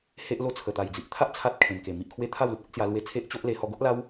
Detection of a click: absent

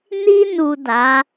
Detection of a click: absent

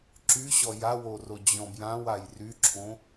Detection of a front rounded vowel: present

